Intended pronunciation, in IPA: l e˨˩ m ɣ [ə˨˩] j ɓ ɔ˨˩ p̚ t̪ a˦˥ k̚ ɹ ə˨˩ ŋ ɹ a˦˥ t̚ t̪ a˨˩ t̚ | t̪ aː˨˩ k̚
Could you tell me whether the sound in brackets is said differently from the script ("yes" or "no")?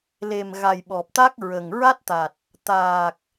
yes